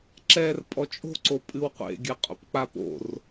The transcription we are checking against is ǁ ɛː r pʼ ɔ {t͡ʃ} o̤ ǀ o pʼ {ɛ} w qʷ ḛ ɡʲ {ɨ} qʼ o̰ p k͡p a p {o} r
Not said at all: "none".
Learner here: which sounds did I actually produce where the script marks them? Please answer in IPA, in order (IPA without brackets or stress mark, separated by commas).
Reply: t͡ʃʼ, ɨ, ɨ, o̰